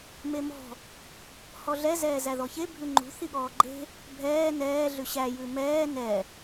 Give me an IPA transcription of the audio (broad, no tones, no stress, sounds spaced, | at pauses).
m e m ɔ̤ | h ɔ ɮ ɛ z ɛː z æ ð ɔ ç e bʱ ʉ ŋ͡ǃ ṳ θ i ɠ ɔː ɡ͡ǃ e̤ | bʱ ɛː n ɛː ɮ ʉ ɕ æ j ʉ m ɛː n ɛ